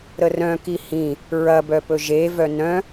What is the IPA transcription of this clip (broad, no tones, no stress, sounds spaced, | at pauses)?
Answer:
ɾ ə r œ̃ k i h ĩ | ɹ ɐ b œ p ɵ ʒ e v œ n œ̃